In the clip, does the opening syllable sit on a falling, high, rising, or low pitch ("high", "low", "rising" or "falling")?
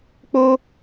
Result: high